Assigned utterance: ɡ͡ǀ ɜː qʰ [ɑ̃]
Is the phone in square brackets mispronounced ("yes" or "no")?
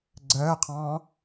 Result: yes